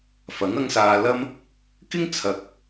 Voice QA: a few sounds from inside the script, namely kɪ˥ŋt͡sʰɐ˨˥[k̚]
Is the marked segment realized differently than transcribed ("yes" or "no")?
no